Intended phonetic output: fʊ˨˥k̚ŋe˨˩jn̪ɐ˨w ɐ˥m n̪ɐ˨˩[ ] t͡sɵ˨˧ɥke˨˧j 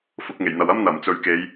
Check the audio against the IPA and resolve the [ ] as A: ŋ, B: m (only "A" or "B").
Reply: B